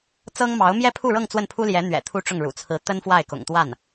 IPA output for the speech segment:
t͡sɤ˥ŋmɑ˧˥ʊ̯ mjɛ˥pʰu˥˧ɻɤ˥˧ŋ t͡swə˥˩npʰu˥ljɛ˧˥ n̪ɥɛ̰˨˩t̪ʰu˥ʈ͡ʂʊ˥˩ŋ ɻṵ˨˩t͡sʰɹ̩˧˥ t̪ə˥nfwa˥˩ɪ̯kʊ̰˨˩ŋt̪wa˥˩n

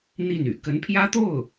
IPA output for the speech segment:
n̪i˥˩ny̰˨˩ kə˧˥npʰjä˥t̪o˥˩ʊ̯

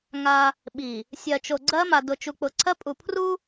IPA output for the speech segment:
ŋa˦ | ɓi˨ | sʲɜ˨t͡ʃo˨ɡ͡ǀɜ˦ma˨ dʊ˨t͡ʃu˨k͡pʊ˨ ǀʰɜ˦pʼu˨ pʰru˦

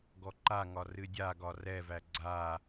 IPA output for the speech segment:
ɡɔǃaŋɒ rɨdʲaɡɒ rɛvæ ɡ͡ǀa

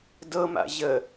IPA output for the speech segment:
dɤma̰ ʑə

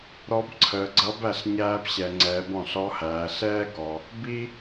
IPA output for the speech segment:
ɾɔ˧˥bǀʰəː˩˧ɡ͡ǀʌ˧˥bæ˩˧ɬ ɲæː˧pɕɛ˩ŋ͡ǀɛː˩˧b ɔ̃˩ɬɔ˧˥hæː˩˧ ɬɛː˥ɡɔ˩ | bi˥

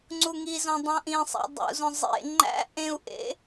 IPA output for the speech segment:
ŋ͡ǀuŋizõ dˤõʔĩsˤæ̰ dˤṵzõ zˤḛ ŋ͡ǃæ̰ ʔẽu̯ʔḛ

